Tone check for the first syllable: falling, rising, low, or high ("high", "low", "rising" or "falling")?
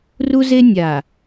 high